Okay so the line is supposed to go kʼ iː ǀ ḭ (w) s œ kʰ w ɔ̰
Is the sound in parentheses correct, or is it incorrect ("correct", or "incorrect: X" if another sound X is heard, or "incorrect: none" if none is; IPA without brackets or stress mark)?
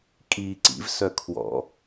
incorrect: v